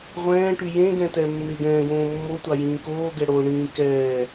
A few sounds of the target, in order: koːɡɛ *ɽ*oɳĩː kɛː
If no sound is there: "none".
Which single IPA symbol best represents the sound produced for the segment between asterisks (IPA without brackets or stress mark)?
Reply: ɽ